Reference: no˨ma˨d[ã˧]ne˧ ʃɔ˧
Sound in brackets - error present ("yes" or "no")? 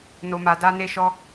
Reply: yes